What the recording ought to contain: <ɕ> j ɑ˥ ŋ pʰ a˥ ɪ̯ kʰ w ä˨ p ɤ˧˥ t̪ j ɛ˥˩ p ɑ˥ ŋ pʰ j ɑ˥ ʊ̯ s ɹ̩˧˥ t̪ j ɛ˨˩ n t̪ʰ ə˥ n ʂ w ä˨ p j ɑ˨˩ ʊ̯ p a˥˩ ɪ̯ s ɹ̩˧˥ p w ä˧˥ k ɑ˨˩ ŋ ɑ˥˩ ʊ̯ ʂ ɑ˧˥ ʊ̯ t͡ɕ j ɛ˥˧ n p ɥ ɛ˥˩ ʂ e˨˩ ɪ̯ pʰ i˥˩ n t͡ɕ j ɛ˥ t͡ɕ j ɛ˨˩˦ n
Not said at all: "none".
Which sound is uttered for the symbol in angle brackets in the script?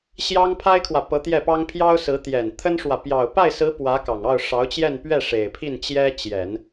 ɕ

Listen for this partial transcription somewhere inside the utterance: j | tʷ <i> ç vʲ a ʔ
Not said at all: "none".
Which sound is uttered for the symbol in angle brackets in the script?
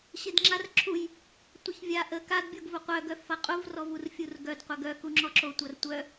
ɪ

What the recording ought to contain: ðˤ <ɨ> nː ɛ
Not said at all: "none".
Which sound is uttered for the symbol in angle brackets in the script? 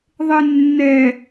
e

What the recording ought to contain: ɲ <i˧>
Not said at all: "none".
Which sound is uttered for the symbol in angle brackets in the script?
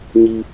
i˧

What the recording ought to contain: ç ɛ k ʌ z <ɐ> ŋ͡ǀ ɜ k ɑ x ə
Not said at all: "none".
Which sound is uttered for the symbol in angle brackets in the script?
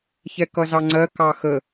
ɑ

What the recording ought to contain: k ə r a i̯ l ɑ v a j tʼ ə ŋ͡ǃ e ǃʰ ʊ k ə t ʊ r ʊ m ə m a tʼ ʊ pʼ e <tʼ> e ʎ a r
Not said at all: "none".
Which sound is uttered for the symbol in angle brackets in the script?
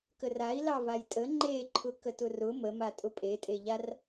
tʼ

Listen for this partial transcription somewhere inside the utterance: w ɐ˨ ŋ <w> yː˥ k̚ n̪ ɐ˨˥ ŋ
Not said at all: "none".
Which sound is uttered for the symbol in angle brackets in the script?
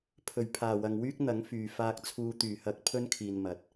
w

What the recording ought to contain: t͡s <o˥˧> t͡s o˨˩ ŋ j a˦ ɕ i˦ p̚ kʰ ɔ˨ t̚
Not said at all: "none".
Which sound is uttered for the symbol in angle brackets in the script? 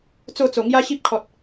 o˥˧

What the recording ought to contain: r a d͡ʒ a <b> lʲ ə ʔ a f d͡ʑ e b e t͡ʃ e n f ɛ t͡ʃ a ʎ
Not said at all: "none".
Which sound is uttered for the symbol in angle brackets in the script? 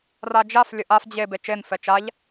f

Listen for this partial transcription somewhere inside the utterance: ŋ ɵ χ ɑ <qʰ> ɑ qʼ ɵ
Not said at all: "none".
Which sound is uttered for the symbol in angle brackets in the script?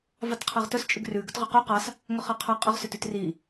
qʰ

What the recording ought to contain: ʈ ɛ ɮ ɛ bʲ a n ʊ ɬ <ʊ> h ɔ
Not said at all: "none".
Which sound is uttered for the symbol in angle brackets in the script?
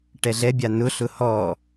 ʊ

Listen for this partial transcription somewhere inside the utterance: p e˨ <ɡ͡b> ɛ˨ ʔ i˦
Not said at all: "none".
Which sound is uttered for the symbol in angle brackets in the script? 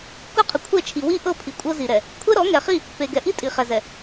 ɡ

